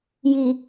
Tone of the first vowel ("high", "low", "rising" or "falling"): low